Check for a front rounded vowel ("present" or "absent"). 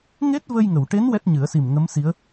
absent